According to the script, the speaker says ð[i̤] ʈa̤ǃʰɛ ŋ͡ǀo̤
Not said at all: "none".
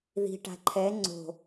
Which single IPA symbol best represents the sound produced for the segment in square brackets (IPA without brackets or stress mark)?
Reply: i̤